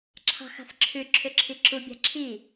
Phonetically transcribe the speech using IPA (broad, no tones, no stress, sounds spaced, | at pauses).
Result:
ǁʰ ɑ̤ x a̤ f ǁʰ ʉ ǁʰ ʏ ǁʰ i ǁ u bʲ a̤ ǁʰ i